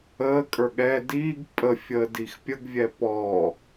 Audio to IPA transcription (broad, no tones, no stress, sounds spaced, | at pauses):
əː kʼ ə˞ ɠ ɛ d iː ɡ pʼ ə fʲ əː d i x pʲ ə ɡ vʲ ɛ p ɔː